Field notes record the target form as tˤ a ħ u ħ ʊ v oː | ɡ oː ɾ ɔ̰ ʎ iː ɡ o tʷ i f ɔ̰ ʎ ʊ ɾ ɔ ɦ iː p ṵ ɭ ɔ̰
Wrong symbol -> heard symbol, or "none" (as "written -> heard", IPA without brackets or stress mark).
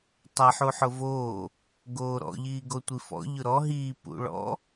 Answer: none